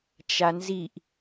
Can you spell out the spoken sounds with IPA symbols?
t͡ʃ a n z i ʔ

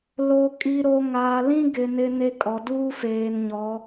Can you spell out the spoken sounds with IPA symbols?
l o˨ kʼ i˨ ɾ o˨ ŋ aː˨ l ĩ˦ ɡ ɪ˨ n ɪ˦ n e˦ kʼ ɔ˨ d uː˦ f eː˨ n ɲ ɔ˨˦

